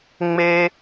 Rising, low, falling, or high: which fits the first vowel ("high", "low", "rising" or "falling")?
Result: high